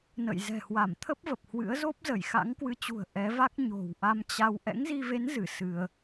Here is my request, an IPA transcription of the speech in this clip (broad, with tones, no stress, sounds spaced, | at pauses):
n ə̰˧˨ j z ɛ̤˨˩ h w a˧˩ m t̪ʰ ə˦˥ p̚ v ə˨˩ p̚ h w ɨ̰˧˥ ə̯ z o˦˥ p̚ z ə˧˩ j x a̰˧˥ ŋ k w ɨ˨˦ t͡ɕ ṳ˨˩ ə̯ ʔ ɛ˨˦ v a˦˥ k̚ ɲ o̤˨˩ w ʔ a˧ m t͡ɕ a˧ w ʔ ɛ̰˧˥ ŋ z i˧ v e˨˦ n z ɨ˧˩ s ɨ˧ ə̯